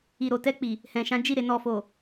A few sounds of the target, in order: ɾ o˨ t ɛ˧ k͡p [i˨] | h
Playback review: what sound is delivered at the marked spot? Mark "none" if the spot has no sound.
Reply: i˨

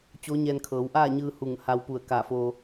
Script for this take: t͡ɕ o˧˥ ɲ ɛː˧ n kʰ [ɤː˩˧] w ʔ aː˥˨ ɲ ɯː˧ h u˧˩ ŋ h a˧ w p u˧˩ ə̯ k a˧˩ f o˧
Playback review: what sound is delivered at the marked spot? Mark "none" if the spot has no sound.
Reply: ɤː˩˧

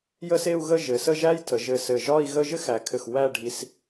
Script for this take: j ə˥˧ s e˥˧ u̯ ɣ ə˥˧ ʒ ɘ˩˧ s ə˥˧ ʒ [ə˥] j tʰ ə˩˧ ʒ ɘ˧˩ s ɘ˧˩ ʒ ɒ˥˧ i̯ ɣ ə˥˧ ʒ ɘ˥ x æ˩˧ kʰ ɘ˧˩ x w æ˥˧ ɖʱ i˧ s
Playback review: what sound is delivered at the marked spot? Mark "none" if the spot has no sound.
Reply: æ˥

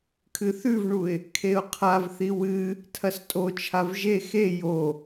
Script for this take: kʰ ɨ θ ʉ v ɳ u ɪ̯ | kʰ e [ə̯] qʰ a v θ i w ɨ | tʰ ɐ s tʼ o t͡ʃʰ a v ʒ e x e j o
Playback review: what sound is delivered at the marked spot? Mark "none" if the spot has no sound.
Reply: ʊ̯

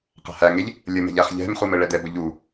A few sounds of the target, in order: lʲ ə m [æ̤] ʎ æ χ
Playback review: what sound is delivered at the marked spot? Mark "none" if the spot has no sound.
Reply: ɛ̤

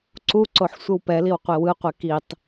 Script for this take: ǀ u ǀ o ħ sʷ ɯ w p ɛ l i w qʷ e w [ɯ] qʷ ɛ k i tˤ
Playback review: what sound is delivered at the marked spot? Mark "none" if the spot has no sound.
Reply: ɯ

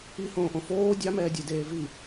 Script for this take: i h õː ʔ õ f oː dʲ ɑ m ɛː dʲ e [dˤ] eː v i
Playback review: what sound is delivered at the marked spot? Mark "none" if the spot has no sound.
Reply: d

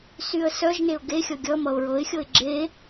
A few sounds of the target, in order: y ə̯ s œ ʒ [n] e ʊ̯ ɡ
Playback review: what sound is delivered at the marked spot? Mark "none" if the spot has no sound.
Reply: n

